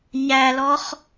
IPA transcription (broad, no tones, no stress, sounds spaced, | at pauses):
ɲ æ l ɔ χ